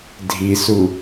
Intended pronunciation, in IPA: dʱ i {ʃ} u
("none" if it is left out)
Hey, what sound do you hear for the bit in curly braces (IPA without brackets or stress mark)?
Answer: s